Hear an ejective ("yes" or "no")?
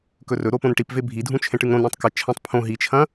no